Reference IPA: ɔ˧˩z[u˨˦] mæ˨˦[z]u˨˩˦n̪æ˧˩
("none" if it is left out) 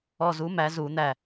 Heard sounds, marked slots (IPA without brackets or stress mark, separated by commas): u˨˦, z